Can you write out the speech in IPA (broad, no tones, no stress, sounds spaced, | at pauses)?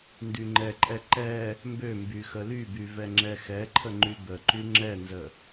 n d y ŋ͡ǃ ɛ ǃʼ ɛ ǃ ɛ | m b ø m b y x ə l y b y v ɛ ŋ͡ǁ ɛ x ɛ ǃʰ ə ŋ͡ǃ y b ə ǃ y ŋ͡ǁ ɛ n z ə